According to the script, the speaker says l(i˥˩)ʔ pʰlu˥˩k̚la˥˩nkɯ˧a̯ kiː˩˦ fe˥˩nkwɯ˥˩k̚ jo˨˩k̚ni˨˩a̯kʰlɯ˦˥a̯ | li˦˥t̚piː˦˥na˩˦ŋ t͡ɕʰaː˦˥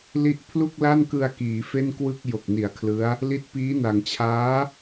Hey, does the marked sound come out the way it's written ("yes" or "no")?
no